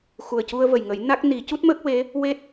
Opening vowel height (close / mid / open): close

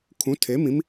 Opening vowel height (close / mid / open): close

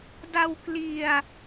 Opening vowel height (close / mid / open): open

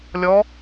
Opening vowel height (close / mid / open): mid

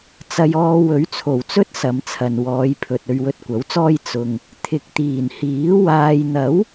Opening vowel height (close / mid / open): open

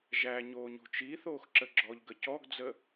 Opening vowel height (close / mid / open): open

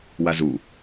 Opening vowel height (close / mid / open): open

